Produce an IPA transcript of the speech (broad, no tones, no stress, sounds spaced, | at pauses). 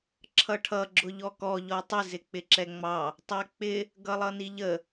ǁʰ ʌ ʈʰ ʌ ɡ͡ǁ ʊ ʎ ɔ k ɔ ʎ ɔ tˤ ɪ z ɪ k͡p ɪ ǁ ɛ ŋ͡m ɑ | tˤ æ k͡p ɪ | ɡ ʌ lˠ ʌ n i ʎ ə